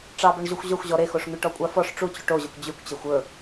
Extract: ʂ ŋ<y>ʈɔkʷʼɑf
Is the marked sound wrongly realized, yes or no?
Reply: no